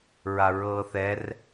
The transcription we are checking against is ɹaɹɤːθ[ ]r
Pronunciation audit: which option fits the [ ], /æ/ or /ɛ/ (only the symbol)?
ɛ